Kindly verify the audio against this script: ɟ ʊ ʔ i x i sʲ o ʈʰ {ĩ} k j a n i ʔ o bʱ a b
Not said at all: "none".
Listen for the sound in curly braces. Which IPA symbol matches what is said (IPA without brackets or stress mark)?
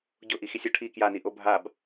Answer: i